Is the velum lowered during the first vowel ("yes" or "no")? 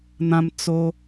yes